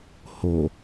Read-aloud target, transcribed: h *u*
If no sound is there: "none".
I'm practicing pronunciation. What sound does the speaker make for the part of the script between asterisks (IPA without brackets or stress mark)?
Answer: o